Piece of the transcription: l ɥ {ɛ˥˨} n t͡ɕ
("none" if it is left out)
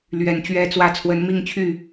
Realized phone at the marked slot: ɛ˨˦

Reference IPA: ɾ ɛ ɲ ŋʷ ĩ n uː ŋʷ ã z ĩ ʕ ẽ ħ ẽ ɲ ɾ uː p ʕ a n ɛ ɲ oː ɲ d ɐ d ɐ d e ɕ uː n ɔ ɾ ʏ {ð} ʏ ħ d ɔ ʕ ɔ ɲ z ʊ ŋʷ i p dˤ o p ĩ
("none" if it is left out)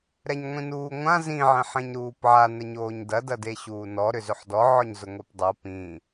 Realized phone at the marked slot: z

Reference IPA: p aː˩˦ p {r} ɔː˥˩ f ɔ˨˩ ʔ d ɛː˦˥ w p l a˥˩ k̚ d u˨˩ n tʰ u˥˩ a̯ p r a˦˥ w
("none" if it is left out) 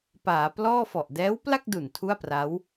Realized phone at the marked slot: l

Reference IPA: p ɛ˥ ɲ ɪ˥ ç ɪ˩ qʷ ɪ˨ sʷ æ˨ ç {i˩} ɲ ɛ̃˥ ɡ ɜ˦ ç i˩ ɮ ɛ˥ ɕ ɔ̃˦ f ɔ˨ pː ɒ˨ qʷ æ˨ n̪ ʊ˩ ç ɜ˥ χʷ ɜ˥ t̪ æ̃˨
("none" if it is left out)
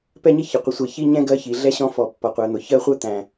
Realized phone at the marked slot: i˥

